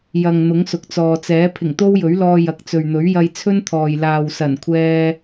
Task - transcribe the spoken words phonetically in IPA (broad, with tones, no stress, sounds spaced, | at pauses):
j ɐ˨ ŋ n̪ ʊ˨˥ ŋ s ʊ˨ k̚ t͡s ɔː˨ t͡s ɛː˨˥ pʰ ɪ˨˩ ŋ t̪ o˥ w j ɵ˨˥ ɥ l ɔː˧ j ɐ˨ k̚ t͡s ɵ˨ ɥ n̪ ɵ˨˥ ɥ j ɐ˧ j t͡sʰ ɵ˥ n t̪ʰ ɔː˨ j l aː˨ w s ɐ˨˩ n kʷʰ ɛː˧